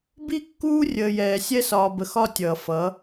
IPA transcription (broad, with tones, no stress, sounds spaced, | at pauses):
b i˦ kː uː˦ rʲ əː˨ j ɛː˨ sʲ ɛ˦ s ɒː˨ b ə˨ x ɒ˦ tʲ ʌː˨ f ʌ˨˦